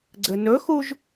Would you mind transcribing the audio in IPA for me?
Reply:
ɡ͡ǀ ɘ n ɵ x u ʒ

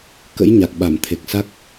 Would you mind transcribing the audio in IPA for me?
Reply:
k ə̰˧˥ j ɲ a˨˩ k̚ ɓ a˧˩ m t̪ʰ e˨˩ k̚ s a˦˥ k̚

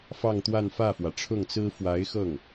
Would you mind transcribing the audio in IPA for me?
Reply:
f ɑ˥˧ ŋ t̪ w a˥˧ n f ä˥˩ f w ä˩ ʈ͡ʂʰ ʊ˥˩ ŋ t͡s ɹ̩˥ f w a˧˥ ɪ̯ x ɤ˥˩ ŋ

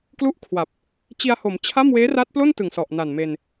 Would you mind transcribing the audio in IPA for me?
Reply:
k l u˥˩ ʔ kʰ w a˨˩ p̚ | t͡ɕ i˧ a̯ h o˩˦ m t͡ɕʰ a˥˩ m w eː˦˥ r a˦˥ t̚ p l o˥˩ n t ɯ˨˩ ŋ s ɔ˨˩ ʔ n a˨˩ n m e˧ n

